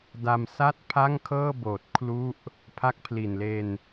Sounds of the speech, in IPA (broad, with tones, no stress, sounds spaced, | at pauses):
d a˧ m s a˥˩ t̚ pʰ a˥˩ ŋ kʰ ɤː˥˩ b oː˨˩ t̚ kʰ l u˥˩ ʔ | pʰ a˦˥ k̚ pʰ l i˨˩ n l e˧ n